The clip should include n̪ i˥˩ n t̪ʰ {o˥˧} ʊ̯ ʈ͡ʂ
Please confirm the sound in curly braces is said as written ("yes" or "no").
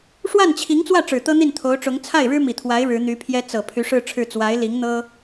no